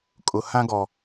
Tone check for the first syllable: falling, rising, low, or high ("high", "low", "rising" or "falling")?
low